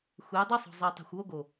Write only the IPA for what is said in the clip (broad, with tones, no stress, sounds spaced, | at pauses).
xʷ e˨˦ j dˤ ɯ˦ sˤ o̤˨ zˤ ɛ˨ tˤ e̤˨ xʷ w o˦ ɡ o˨